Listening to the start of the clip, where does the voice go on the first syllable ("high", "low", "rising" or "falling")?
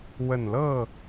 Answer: low